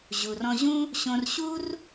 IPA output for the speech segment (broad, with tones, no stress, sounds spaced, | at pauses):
ʑ u˩ r ɔ̃˧ ʑ ũ˥ | ɕ õ˧ r ɕ u˥ r